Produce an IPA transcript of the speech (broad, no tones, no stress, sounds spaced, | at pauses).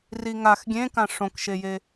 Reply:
r i ŋ a x ɡʲ ẽ k ã ʂ õ k ʃ e j e